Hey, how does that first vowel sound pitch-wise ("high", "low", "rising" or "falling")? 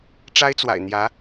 high